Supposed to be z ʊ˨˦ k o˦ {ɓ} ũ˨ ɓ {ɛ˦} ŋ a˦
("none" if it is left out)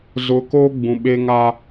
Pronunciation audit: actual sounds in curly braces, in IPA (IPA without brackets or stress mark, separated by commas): ɡ͡b, e˦